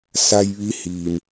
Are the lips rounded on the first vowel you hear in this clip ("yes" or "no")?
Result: no